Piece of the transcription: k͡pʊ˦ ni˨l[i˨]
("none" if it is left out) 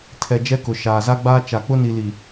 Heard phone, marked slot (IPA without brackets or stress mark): i˨